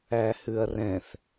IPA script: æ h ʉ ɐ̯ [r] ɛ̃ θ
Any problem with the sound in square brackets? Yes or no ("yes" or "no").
no